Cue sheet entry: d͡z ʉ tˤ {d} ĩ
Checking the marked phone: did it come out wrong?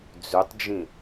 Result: yes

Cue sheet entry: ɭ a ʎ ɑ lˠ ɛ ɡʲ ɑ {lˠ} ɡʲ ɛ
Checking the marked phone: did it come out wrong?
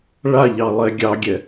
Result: yes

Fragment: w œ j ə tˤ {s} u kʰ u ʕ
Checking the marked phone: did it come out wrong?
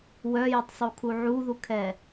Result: yes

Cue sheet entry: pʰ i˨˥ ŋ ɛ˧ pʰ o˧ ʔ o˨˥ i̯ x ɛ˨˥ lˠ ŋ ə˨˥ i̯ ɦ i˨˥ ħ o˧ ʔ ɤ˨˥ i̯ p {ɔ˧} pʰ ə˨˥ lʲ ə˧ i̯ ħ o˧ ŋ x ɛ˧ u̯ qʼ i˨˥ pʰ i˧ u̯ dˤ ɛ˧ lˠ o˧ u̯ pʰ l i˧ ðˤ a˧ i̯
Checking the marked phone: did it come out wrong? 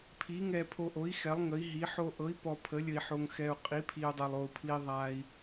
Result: no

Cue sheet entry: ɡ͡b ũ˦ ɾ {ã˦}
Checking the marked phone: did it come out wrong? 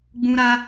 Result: yes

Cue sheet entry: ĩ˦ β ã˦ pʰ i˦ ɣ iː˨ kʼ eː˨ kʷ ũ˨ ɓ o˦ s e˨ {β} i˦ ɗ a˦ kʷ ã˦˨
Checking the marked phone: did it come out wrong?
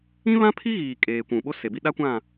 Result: yes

